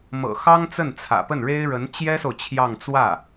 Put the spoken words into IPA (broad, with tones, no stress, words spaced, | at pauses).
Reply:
mɤ̰˨˩xɑ˥ŋ t͡sə˥˩nt͡sʰä̰˨˩pə˥˩nɻe˥ɪ̯ ɻə˧˥nt͡ɕjɛ˥so˨ʊ̯ t͡ɕʰjɑ˥˧ŋ t͡swä˥˩